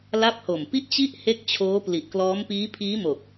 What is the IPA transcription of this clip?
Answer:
l a˦˥ p̚ h o˨˩ m p i˥˩ ʔ t͡ɕ i˥˩ ʔ h e˦˥ k̚ t͡ɕʰ oː˦˥ p l i˨˩ ʔ k l ɔː˦˥ m p iː˦˥ pʰ iː˦˥ m o˨˩ k̚

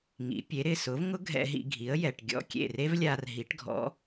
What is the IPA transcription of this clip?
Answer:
ŋ ḭ˩˥ pʲ e˩˥ ɾ ɪ˥˩ s ʊ˩˥ v ŋ ʊ˥ ɡʱ ɛ̰˧ ɦ ḭ˧ ɡʱ i˩˥ ə̯ j ɛ˩ ʈ ɡʲ ɔ̰˥˩ kʲ ḛ˥˩ r e˥ v lʲ a˧ r ɦ i˩˥ ʈ ɡʱ ɔ̰˩˥

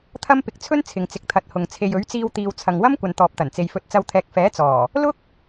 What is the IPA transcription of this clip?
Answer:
t̪ʰ ɐ˥ m p ɪ˧ k̚ t͡sʰ ɵ˥ n t͡sʰ ɪ˨ ŋ t͡s ɪ˨ k̚ t̪ʰ ɐ˨˥ t̚ h ʊ˨ ŋ t͡sʰ e˨ j ɵ˨˥ ɥ t͡s iː˧ w t̪ iː˨ w t͡sʰ ɐ˨ ŋ w ɐ˥ m kʷ ɐ˨ n t̪ ɔː˨ p̚ t̪ ɐ˨˩ n t͡s e˨ j f ɵ˨ t̚ t͡s ɐ˨˧ w t̪ʰ ɛː˨ k̚ f ɛː˨˥ t͡s ɔː˨˩ | l ʊ˥ k̚

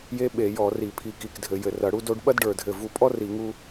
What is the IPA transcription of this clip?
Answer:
j e˥ ɓ e˧˩˧ j ɔ˧˩˧ r i˧˩˧ pʰ i˧˩ k i˧˩ k dʱ ɘ˧˩˧ j ɘ˧˩ r ɐ˧˩˧ ɽ u˥ d o˥ ɖ ɓ ɐ˥ d ɖ ə˞˧˩ dʱ ɘ˧˩ v u˧˩ pʼ ɔ˥ r i˧˩˧ ŋ u˥

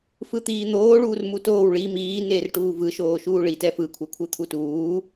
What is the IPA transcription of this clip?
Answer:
f ɯ t̪ iː n̪ oː ɭ uː r m u t oː w ɭ i m iː n eː r ʈ uː v ɯ ʃ oː ʃ uː ɭ i t ɛ f ɯ kʷʰ ɛ kʷʰ ɯ t̪ʰ u t uː

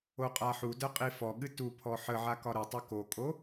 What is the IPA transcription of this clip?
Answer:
o qʼ a ħ u d ə qʼ i f ɔ ɠ ɨ t u pʰ ɔ ħ ə ʕ a k ɒ ɾ ə tˤ ʊ k o kʼ o

